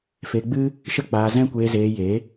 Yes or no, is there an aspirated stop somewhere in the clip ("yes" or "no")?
no